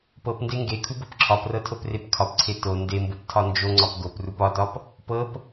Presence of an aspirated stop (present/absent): present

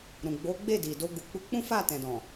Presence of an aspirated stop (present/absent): absent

